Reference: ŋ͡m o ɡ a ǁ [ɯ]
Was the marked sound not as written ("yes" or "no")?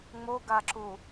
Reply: yes